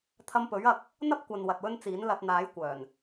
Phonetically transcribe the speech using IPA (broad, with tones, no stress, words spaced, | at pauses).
t̪ʰɐ˧mpɵ˨˥ɥ ɐ˧k̚ | n̪ɐ˥p̚kʷɐ˨n wɐ˨t̚wɵ˥nt͡siː˨˥n lɐ˧t̚ n̪aː˨˥jkʷœː˨˩n